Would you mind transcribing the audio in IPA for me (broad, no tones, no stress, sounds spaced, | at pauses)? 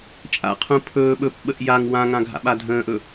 t͡ʃʼ a̰ qʰ ũ pʰ ɵː ɓ ɵ p ɓ ə ʔ j a ŋ w ã ŋ ã ɡʱ a̰ ɓ a dʱ ə̃ː ʔ ɵ